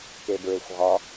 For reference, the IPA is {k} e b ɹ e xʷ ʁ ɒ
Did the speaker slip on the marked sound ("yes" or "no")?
no